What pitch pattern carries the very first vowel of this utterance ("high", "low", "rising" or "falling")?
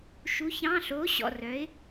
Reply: rising